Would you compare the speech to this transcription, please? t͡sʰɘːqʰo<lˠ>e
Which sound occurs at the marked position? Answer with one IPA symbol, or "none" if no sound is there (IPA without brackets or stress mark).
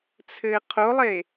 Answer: lˠ